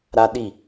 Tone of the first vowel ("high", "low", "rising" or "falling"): high